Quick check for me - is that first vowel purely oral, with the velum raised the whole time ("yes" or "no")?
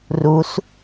yes